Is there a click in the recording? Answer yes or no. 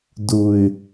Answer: no